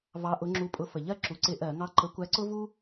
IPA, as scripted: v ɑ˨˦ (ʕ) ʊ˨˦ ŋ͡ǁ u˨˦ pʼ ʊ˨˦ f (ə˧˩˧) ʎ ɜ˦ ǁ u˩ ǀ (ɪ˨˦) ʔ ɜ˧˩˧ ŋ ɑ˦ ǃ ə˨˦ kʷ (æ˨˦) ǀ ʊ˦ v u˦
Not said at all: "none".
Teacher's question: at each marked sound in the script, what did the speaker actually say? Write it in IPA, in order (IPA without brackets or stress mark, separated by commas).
ʔ, ə˩, ɪ˧˩˧, æ˨˦